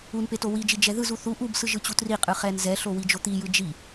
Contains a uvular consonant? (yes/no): yes